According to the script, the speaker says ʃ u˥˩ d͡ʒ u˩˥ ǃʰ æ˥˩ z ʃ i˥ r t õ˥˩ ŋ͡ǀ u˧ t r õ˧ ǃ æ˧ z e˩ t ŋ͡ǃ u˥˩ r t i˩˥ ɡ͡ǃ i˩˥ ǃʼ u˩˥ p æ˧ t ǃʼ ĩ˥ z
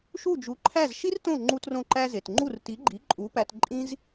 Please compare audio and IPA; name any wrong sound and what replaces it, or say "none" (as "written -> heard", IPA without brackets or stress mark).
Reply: ŋ͡ǀ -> ŋ͡ǃ